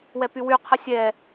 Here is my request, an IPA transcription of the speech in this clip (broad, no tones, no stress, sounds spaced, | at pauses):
w ɛ p y w y qʰ ə sʲ ɛ